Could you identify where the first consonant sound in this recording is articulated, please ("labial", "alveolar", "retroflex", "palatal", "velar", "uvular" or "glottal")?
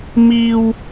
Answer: labial